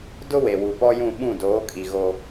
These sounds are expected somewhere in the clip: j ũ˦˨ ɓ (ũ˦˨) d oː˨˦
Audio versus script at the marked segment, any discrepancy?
no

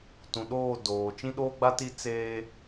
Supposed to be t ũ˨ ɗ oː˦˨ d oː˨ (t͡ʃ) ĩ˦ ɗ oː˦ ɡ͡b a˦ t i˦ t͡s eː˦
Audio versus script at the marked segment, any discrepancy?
no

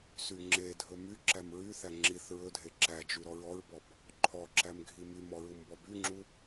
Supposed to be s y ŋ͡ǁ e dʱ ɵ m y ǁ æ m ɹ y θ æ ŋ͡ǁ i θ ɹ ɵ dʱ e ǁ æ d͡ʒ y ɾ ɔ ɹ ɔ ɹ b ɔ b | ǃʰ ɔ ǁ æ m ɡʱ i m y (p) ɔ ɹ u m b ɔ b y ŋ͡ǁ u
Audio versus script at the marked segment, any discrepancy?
yes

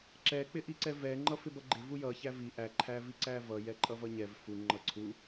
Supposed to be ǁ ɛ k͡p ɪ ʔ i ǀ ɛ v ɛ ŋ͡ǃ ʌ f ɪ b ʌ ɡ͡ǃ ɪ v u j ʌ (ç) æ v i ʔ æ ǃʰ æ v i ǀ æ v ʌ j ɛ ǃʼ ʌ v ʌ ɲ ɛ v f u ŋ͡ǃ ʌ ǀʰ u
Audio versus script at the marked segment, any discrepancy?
no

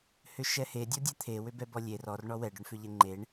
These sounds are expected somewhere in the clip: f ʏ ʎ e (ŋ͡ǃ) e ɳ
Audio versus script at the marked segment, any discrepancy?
no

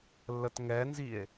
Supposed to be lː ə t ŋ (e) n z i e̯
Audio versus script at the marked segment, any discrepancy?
yes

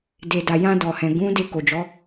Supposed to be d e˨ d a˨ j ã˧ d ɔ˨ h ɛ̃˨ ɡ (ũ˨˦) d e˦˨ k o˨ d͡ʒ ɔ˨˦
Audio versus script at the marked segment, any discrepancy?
no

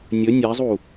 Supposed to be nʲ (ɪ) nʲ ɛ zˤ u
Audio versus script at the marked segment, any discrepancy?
yes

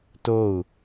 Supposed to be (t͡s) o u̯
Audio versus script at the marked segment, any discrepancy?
yes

